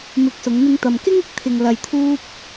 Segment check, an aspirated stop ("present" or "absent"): present